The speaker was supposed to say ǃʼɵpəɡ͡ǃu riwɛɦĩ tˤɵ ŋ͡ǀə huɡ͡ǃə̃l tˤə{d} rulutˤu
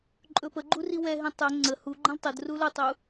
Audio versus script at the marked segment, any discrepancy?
no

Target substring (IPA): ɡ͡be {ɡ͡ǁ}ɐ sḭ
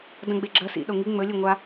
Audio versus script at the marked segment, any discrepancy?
no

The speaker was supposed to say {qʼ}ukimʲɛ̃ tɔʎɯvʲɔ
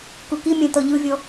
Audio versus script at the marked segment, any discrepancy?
yes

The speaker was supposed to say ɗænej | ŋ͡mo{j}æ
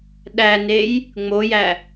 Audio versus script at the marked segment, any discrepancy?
no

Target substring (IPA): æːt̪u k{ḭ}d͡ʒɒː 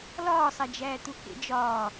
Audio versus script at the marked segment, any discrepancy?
yes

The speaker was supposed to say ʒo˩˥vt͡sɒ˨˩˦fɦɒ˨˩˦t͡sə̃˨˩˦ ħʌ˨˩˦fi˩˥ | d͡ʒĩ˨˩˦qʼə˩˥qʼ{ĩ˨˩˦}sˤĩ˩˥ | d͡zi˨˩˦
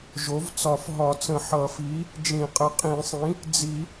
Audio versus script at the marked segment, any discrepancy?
no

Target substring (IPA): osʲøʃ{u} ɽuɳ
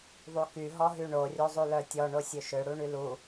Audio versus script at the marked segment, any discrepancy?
yes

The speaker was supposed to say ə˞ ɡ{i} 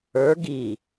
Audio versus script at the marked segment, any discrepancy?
no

